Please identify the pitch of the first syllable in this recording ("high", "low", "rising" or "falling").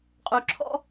low